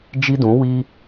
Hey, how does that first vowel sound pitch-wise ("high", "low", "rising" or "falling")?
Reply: high